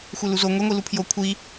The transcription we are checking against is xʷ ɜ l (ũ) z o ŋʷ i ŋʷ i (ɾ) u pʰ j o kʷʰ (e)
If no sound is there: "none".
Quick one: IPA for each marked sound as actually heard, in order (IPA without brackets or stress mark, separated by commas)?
u, l, i